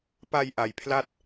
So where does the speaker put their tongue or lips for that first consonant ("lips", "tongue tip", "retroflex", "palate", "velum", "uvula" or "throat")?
lips